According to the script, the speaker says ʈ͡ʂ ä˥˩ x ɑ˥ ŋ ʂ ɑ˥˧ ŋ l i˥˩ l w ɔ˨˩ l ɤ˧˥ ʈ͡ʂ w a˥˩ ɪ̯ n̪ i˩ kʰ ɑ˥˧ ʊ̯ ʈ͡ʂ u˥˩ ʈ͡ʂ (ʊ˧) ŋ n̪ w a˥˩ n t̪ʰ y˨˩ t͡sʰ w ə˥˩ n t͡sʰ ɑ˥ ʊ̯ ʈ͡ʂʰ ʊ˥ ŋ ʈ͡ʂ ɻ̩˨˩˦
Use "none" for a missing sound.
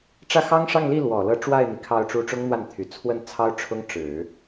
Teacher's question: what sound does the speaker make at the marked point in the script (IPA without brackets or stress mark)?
ʊ˥